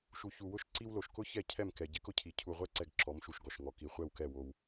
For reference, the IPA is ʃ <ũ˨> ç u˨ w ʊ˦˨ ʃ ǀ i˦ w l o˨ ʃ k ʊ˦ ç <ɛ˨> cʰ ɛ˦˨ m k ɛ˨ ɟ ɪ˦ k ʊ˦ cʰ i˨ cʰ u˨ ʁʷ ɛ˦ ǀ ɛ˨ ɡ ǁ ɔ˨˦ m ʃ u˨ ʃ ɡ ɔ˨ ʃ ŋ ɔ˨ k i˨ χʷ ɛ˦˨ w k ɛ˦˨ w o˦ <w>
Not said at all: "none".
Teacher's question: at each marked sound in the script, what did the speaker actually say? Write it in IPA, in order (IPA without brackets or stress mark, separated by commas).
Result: u˨, ɛ˦˨, w